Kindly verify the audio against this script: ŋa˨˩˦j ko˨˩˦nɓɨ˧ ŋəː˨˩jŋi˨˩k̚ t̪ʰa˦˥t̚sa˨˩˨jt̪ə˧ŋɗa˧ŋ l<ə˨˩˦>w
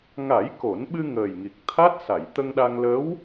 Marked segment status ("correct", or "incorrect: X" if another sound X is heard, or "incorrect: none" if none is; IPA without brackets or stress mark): incorrect: ə˧˥